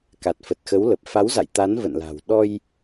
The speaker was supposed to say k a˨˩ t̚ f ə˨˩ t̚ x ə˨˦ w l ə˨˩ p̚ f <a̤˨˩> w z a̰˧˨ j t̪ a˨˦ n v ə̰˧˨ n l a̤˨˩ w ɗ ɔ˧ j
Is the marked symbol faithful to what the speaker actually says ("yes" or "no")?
no